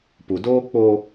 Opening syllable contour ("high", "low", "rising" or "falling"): low